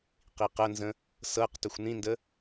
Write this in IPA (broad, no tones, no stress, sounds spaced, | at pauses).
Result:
q i q ɐ n z ə̃ | s ɤ q t ɵ xʷ n ĩ n d ə